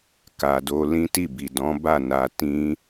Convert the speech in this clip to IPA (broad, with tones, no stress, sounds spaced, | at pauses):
k a˨ d o˧ l ĩ˦ t i˦˨ b i˨ d ɔ̃˨˦ b a˦˨ n a˧ t ĩ˦